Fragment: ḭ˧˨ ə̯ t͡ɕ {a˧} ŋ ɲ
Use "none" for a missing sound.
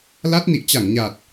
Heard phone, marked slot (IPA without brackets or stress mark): a˧˩